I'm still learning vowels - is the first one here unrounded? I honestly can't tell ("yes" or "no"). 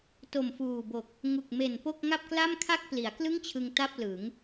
no